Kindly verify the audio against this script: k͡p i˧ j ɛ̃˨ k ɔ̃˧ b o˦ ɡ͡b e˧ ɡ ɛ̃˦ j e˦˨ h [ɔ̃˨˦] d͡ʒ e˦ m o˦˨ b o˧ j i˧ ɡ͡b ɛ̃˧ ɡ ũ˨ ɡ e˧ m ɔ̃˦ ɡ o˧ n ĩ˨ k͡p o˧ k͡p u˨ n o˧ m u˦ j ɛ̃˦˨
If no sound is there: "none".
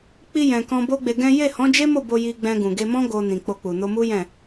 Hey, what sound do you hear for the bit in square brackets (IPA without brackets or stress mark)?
ɔ̃˨˦